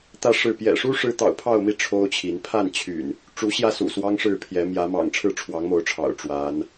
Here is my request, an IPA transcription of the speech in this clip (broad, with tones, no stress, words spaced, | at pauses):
t̪ä˥˨ʂɻ̩˥˨ pjɛ̰˨˩ʂu˦ ʂɻ̩˦ t̪ɑ̰˨˩ʊ̯pʰɑ˥˨ʊ̯mi˥˨ ʈ͡ʂʰo˦ʊ̯t͡ɕʰi˨˦n pʰa˥˨nt͡ɕʰy̰˨˩n | ʈ͡ʂu˨˦ɕjä˥˨sṵ˨˩ swɑ˦ŋʂɻ̩˥˨pʰjɛ˨˦ mjä˨˦mɑ̰˨˩ŋ ʈ͡ʂʰɻ̩˥˨ʈ͡ʂʰwɑ˨˦ŋmo˨˦ʊ̯ʈ͡ʂʰɑ̰˨˩ʊ̯ ʈ͡ʂwa˨˦n